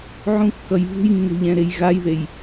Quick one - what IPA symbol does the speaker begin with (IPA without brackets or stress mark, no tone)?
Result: ʕ